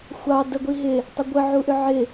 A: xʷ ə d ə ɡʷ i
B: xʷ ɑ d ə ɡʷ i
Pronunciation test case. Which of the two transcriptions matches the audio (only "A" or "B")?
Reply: B